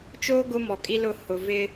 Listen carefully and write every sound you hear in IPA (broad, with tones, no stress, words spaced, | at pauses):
t͡ʃoː˦ ɡʊ˦ mɔ˨kʼi˦lʊ˦˨ hʊ˨vɪ˦